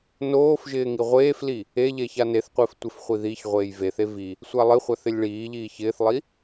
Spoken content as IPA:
n oː f ʒ ɪː ŋ i ʁʷ eː f l i | e ʎ e ç a n e θ qʷ ɪː f tʷ ɪ f χʷ i ð i ç ʁʷ eː j v e θ e v i | sʷ a lˠ ɪ χʷ a θ ɪ lʲ ɭ iː ʎ iː ç ɪː θ lˠ i

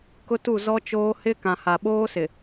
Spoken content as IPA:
k ʊ˦ t u˦˨ z ɔ˦ t͡ʃ oː˦ h ɪ˦ k ã˨ h a˨ ɓ oː˦ s ɪ˨

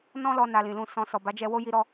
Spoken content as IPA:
n ɔ̃˦ l ɔ˧ n a˧ l ĩ˨ l ũ˧ s ɔ̃˧ s ɔ˨ b a˨˦ d͡ʒ ɛ˧ w o˦ j i˧ ɾ ɔ˧

